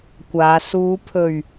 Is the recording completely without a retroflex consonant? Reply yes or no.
yes